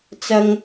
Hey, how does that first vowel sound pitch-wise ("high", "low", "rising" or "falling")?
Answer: low